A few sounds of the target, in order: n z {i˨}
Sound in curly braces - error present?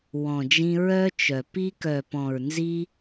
yes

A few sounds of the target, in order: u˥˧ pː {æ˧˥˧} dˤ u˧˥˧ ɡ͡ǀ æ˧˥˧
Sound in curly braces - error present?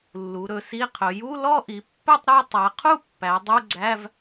yes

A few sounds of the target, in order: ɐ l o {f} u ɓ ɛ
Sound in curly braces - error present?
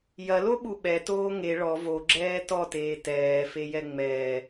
yes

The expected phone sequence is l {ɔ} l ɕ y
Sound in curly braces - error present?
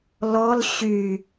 no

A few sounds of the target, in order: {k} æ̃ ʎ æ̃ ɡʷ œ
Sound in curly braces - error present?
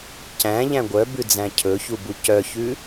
yes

